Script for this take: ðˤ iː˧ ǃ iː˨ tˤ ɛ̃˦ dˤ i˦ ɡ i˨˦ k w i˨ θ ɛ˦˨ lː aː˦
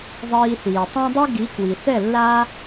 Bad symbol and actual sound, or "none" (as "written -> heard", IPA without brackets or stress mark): ǃ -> θ